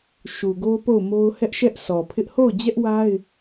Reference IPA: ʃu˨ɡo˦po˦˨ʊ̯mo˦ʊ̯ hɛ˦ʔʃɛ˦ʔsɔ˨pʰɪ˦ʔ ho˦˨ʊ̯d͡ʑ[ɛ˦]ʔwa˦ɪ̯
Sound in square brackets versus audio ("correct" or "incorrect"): correct